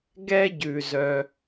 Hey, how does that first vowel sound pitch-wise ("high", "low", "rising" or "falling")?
high